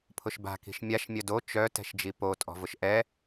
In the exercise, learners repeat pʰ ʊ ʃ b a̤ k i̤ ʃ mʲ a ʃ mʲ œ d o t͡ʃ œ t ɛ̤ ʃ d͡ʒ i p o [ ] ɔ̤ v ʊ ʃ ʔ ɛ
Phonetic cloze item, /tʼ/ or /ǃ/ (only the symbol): tʼ